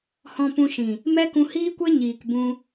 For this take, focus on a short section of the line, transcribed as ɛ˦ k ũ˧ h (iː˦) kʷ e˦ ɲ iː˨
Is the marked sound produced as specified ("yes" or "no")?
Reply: yes